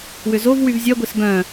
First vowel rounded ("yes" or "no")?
yes